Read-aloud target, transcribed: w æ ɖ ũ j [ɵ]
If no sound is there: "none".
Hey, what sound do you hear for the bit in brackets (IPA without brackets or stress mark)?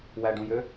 ø